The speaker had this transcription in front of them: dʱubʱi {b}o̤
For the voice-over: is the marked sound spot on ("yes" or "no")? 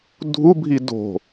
no